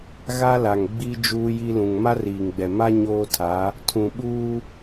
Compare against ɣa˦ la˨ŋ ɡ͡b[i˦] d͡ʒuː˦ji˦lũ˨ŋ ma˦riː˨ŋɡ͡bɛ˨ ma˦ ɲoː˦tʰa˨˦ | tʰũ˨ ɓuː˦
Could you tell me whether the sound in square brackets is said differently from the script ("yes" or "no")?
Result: no